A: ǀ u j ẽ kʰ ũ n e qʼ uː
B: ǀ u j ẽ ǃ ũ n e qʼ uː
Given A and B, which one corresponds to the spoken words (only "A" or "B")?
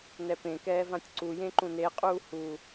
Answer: B